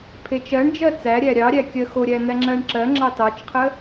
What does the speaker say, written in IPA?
pʰet͡ʃɜɳd͡ʒɜ t͡sæɾʲæ ɾʲɑɾʲæ kʲɜxoɾʲæ n̪æŋ͡ǁɜɳǁɜŋ͡ǁɑ tɑt͡ʃqʰə

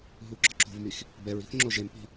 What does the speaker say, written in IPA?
ɦuɡ͡ǁɒǁo̤vmix | bɛɹi̤θ ŋ͡ǁoʒempi̤

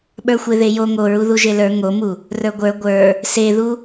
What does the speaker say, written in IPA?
ɓə˞xʷeðejo ŋoɹu ðuʒelə˞ ŋomu | rə˞ɡʷə˞ ɡʷə˞ | seðu

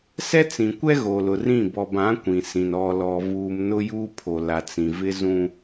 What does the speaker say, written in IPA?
sɛ˦t͡sĩ˨kʷɛ˦ ɣo˨lʊ˨rĩ˦˨ bɔ˨bã˨˦ kʷĩ˨sĩ˨n ɔ˨lɔ˨vuː˨m nʊ˦ juː˦pʰo˨ la˨t͡sĩ˨vɪ˦zũ˦

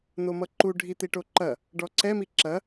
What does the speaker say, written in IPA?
n̪omʌǃu ɖʱit̪iʈoǃɐ | ɖɔǀɛ miǁɐ

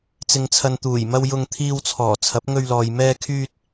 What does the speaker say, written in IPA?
t͡sɪ˨ŋt͡sʰɐ˨nt̪uː˨˩jmɐ˧w jʊ˧ŋt̪ʰiː˧wt͡sʰɔː˨˩ t͡sʰɐ˨˥p̚ŋɵ˧ɥlɔː˨j mɛː˧kʰyː˧t̚

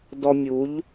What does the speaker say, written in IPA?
dɔ˧mʲu˨˦ʎ

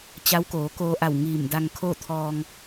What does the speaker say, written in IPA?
t͡ɕa˧˥wkoː˩˧koː˧ʔa˧˩w ŋiː˧˩mda˧ŋ kʰoː˥˨t̪ʰɔː˧ŋ

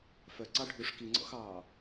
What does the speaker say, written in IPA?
fœǀɑ ɖʱuʂ kiŋ͡ǀɔ̰xɑː

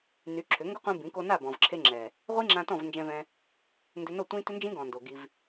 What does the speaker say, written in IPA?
ny˨˦ ǁʰʏ˨˦ŋɡʊ˦qʷĩ˧ bĩ˨˦ko˧na˦˨ bɔ̃˨vǁʰe˧ŋ͡ǁɛ˨ | ʁʷi˦ŋ͡ǁã˧ tɔ̃˦˨vnd͡ʒɛ̃˧vɛ̃˧ | ndʏ˧no˦˨ tʷĩ˦ tʏ˦nd͡ʒĩ˦ɡɔ̃˨ndo˨ ɡi˧v

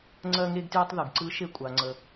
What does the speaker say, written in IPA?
ŋ͡ǀɜ˥ŋe˥ɡtjʊ˥tˤ ðɯ˩ɡǀɯ˧˥ ʃe˧kʷʼa˩ŋ͡ǀə˩

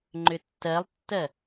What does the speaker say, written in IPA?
ŋ͡ǃʏtːɜlˠtːɜ

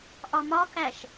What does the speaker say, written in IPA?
ʔɒmɒkæʃ

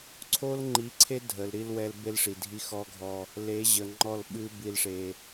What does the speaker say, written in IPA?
ǀʰo˦lŋ͡ǃi˨˦ǀʰe˦ dʱə˨lɾi˦lwɛ˦l be˦lʂi˨dʱi˦ xɔ˦ɡʱɔ˦ | le˨˦ʑə˨ŋ͡ǃɔ˦˨lɓɨ˦ bi˦lʂe˦

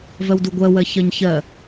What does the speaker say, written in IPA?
vɜwduɡʷɜ wɜçɜɲçɜ

